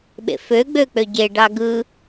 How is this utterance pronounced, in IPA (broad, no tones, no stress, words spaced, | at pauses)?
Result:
ɓḛfø ɡ͡bøk͡pøɟe ɖɑɡɯ